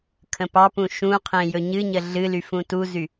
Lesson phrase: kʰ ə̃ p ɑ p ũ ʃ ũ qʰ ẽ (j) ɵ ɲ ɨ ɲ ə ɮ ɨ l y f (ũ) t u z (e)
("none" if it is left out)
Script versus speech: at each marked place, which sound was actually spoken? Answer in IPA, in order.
j, ũ, y

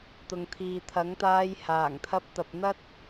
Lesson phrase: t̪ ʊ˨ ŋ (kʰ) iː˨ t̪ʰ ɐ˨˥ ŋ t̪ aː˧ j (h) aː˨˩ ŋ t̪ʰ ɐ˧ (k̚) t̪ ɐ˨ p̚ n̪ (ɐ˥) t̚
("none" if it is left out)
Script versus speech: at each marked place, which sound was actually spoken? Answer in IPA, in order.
t̪ʰ, h, p̚, ɐ˥

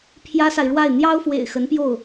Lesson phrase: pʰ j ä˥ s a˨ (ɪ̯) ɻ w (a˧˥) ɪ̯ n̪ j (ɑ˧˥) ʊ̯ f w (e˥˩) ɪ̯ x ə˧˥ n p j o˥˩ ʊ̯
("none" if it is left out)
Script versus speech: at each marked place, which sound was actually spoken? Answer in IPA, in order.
ɪ̯, a˥˩, ɑ˥, ḛ˨˩

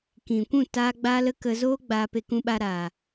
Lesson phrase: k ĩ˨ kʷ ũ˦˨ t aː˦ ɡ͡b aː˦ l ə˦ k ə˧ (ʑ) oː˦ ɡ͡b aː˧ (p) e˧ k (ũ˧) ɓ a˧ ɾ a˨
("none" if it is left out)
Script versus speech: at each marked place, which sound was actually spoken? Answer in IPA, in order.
z, p, ũ˧

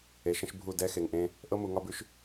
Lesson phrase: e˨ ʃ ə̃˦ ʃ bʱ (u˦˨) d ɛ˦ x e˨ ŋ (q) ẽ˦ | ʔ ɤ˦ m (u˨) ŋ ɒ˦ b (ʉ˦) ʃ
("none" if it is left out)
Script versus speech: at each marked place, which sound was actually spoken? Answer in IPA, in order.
u˦˨, ʔ, u˨, ʉ˦

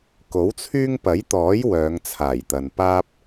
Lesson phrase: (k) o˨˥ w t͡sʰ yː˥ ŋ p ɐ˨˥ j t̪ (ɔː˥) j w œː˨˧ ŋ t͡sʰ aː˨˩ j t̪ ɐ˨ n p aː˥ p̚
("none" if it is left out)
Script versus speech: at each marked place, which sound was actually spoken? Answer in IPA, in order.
k, ɔː˨˥

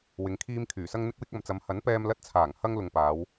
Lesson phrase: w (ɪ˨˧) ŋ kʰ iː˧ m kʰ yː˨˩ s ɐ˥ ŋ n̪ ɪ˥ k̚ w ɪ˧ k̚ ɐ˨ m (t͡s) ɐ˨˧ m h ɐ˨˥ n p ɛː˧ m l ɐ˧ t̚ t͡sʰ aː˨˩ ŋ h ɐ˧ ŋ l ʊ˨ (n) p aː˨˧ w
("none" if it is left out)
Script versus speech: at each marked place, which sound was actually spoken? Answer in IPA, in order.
ɪ˨˧, t͡s, ŋ

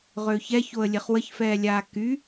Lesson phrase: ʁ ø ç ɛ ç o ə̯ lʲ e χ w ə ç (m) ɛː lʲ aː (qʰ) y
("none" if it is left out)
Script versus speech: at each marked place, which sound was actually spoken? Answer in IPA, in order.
f, k

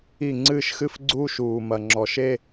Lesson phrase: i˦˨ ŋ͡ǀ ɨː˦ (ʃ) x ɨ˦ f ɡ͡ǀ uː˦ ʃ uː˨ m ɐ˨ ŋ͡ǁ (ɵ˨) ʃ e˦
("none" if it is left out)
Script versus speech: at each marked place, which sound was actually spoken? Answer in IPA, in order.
ʃ, ɔ˨

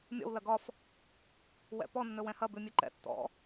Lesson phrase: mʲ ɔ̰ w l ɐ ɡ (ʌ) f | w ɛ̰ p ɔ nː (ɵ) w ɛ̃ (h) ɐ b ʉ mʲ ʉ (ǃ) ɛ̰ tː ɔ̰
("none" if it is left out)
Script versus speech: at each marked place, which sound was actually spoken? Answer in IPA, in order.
ɒ, ɵ, h, ǃ

